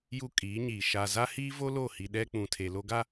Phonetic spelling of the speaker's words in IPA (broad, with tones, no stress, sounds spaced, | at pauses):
j u˦ kʼ iː˨˦ ɲ iː˨ ʃ a˨ z a˦ h iː˦ v o˦ l o˦˨ h i˨ ɗ ɛ˦ k͡p ũ˨ tʰ e˨ l o˦ ɡ a˦